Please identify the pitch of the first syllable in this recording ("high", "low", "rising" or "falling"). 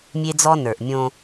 high